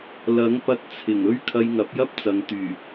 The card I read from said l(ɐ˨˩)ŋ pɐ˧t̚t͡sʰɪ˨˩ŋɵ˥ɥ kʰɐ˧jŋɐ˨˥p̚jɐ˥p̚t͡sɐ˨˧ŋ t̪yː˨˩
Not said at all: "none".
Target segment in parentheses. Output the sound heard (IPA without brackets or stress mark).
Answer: ɐ˨˥